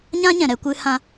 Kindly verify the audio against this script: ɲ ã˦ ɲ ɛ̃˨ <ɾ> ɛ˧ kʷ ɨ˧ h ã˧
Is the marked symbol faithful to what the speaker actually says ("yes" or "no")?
yes